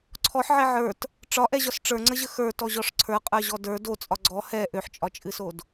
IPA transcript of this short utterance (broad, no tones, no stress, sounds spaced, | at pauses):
ǀʰ ɔ ħ ʕ ɛ ʕ ə˞ t | ʈ͡ʂ ɒ ʔ ɛ ʑ ɒ s ʈ͡ʂ ə˞ ŋ͡ǀ ə ʑ ə x ə˞ t ɔ ʑ ɔ ʂ ǀʰ ə˞ qʼ ə˞ ʑ ɔ d ə˞ d o t͡sʼ ɒ ɡ͡ǀ ɔ h ɛ ʔ ø ħ t͡ʃʼ ɒ t͡ʃʼ ɨ s o d